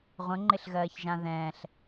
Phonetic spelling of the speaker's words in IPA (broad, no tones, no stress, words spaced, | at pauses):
ʁʷə̃ŋ͡ǃɪɬɣɜːçʒã ðɛ̃ːɬ